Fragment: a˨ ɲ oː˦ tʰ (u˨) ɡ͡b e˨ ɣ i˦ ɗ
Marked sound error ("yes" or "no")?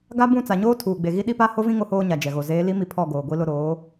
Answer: yes